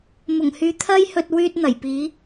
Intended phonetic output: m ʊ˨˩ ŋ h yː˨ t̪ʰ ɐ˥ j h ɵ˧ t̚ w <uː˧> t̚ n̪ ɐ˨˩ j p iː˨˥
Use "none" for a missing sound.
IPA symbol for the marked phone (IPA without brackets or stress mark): yː˧